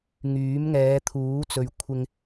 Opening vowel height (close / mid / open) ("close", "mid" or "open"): close